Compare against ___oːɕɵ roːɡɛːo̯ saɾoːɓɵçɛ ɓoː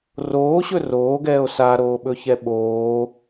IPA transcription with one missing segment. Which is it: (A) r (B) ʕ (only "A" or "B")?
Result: A